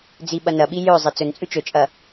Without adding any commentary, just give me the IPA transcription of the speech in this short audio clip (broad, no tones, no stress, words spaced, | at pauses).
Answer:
d͡ziɓɐnɐɓi jɵzˤe t͡sɵnt͡sʼʉ t͡ʃɵt͡ʃʼɐ